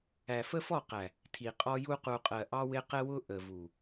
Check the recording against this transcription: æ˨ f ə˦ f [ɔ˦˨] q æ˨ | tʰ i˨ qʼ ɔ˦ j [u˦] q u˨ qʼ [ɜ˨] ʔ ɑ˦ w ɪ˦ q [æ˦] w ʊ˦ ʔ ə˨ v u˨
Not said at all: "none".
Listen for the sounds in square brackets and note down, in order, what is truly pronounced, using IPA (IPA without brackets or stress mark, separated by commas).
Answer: ɔ˦˨, u˦, ɜ˨, ɛ˦